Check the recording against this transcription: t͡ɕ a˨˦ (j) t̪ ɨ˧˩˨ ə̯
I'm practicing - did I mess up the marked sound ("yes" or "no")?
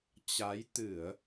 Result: no